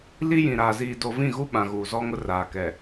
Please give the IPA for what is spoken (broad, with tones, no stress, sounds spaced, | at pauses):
l i˦ j ĩ˨ ɾ aː˨ z iː˨ d o˨ v ĩ˦˨ ɣ u˦ ɓ ã˨ ɣ uː˨ z ɔ˦ ŋ ʊ˦ r aː˨ k ɛ˨